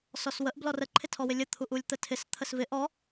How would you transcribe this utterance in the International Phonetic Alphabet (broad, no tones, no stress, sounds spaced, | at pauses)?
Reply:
s ɔ s w ə ʔ b l ɔ r ə ǃʰ ɪ tʰ ɔ w ɪ lʲ ə t̪ʰ u ʔ u lʲ t̪ ə tʰ ɪ s t̪ʰ ə s v ɪ ʔ ɔ